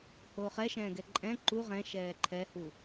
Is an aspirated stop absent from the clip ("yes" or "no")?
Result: no